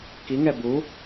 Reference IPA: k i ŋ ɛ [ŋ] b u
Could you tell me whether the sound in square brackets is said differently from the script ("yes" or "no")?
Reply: yes